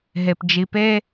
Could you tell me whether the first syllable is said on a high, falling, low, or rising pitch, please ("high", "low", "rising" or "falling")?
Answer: low